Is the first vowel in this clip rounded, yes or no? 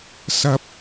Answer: no